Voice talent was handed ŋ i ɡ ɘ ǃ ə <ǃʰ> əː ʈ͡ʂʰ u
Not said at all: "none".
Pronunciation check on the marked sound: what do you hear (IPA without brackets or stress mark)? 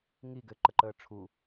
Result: ǃ